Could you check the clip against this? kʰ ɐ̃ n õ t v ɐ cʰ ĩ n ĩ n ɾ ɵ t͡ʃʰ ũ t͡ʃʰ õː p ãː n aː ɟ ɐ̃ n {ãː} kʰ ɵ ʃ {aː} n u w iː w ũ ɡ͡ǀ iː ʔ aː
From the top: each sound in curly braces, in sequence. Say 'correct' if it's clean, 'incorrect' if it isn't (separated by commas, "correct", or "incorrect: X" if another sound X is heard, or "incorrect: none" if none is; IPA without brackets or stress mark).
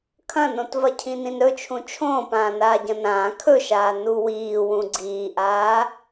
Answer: correct, correct